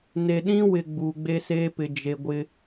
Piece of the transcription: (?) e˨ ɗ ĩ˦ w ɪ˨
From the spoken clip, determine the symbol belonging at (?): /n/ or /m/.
n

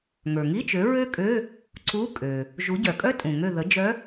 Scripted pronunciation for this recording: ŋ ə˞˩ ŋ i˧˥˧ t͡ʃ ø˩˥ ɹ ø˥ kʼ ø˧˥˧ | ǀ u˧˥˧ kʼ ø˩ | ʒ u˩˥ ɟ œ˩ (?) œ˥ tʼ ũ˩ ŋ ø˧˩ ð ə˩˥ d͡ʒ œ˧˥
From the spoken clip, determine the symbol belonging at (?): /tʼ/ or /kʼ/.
kʼ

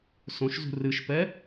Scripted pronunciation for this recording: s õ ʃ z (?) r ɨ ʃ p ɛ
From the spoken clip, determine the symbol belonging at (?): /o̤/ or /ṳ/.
ṳ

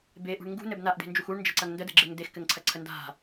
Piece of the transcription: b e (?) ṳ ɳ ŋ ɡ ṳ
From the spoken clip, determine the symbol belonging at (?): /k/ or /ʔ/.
ʔ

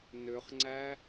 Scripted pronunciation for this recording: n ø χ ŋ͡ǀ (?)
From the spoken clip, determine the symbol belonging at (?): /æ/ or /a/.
æ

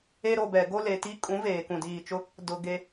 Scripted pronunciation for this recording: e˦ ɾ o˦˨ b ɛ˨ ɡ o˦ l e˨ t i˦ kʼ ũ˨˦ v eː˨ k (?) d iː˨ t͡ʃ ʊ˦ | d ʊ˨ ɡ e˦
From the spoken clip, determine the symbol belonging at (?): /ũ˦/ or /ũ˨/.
ũ˨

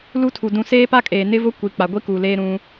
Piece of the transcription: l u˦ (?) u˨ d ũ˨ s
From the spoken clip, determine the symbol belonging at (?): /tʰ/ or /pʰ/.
tʰ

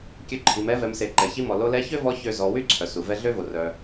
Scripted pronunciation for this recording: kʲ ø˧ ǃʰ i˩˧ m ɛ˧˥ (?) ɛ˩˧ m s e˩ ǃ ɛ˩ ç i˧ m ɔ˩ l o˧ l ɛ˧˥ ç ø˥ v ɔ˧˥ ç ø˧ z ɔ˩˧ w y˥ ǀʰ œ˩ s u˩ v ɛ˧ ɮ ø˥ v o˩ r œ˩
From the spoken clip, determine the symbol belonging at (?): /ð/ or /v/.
v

